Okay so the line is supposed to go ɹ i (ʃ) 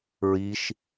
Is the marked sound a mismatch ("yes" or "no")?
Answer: no